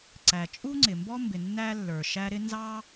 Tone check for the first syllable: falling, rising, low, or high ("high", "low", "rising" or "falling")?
low